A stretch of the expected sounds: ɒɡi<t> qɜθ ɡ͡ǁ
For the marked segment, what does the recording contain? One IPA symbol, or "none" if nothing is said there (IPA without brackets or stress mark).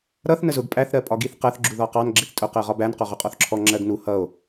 θ